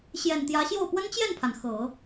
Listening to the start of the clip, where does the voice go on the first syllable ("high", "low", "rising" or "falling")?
low